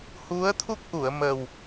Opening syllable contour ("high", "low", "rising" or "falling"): rising